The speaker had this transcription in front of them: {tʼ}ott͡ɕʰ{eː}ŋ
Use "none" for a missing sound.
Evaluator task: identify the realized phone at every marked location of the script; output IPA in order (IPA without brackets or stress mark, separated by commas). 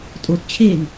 tʼ, eː